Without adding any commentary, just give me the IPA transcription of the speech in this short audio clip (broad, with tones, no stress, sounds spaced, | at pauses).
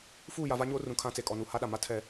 f uː˦˨ j a˨ v a˦ ɲ oː˦ r ũ˨ kʰ ã˦ t͡s e˨ kʼ ɔ˨ n u˨ h a˦ ɗ a˨ m a˦ tʰ ɛ˦